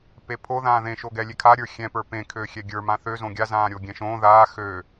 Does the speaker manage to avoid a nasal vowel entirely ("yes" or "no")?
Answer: no